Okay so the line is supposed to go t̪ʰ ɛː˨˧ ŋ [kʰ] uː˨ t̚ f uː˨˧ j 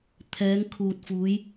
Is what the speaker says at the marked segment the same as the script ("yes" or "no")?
yes